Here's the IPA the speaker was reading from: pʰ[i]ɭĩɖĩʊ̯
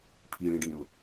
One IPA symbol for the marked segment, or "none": i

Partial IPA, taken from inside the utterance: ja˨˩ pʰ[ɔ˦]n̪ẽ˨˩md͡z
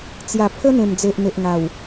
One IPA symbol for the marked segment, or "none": ə˦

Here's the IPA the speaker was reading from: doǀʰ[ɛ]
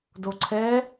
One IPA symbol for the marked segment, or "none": ɛ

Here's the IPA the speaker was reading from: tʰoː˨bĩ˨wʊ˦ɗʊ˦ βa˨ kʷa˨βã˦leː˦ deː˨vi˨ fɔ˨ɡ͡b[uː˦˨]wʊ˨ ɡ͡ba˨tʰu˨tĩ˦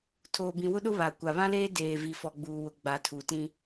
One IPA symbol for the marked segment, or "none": uː˨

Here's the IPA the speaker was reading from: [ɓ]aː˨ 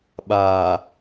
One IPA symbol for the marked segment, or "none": ɓ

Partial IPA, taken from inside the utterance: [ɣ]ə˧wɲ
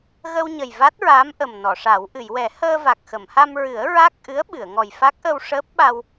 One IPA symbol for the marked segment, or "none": ɣ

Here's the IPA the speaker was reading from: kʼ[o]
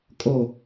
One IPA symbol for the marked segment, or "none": o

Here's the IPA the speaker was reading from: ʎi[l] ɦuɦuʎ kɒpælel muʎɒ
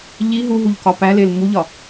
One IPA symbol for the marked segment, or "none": none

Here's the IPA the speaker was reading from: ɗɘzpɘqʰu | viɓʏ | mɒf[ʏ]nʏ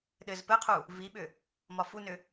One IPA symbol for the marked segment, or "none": u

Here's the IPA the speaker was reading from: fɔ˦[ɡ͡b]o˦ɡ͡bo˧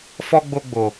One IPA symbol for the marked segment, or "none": ɡ͡b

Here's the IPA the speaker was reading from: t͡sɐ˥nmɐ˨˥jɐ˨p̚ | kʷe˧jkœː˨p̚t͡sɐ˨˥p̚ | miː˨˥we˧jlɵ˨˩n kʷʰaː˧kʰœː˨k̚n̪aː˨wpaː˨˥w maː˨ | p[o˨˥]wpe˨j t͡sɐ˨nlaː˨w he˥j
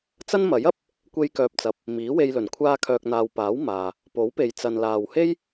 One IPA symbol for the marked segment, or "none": o˨˥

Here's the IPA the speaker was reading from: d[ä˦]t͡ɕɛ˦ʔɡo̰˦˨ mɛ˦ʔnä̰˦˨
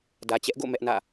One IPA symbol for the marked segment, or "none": ä˨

